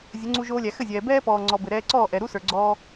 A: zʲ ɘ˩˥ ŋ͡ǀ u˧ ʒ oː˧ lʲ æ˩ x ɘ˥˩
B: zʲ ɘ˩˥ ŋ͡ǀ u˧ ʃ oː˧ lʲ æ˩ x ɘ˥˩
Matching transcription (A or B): A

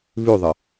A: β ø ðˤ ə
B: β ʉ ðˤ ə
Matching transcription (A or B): B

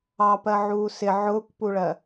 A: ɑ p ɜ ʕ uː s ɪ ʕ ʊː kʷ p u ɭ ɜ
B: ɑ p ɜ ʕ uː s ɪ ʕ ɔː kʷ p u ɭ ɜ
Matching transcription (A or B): A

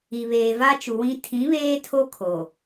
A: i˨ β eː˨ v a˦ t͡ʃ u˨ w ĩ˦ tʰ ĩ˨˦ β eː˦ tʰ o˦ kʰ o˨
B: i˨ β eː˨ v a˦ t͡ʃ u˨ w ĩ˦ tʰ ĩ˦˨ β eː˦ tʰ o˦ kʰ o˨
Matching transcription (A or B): A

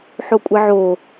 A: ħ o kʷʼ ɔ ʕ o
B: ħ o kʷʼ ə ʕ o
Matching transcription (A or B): B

